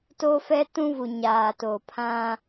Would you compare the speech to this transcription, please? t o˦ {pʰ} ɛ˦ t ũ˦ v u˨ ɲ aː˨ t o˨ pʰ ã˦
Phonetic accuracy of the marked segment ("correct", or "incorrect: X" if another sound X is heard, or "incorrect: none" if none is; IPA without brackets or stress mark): incorrect: f